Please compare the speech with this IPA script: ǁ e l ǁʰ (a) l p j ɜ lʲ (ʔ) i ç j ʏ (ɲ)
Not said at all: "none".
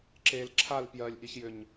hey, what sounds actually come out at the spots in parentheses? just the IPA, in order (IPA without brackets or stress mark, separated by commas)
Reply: a, ʔ, ɲ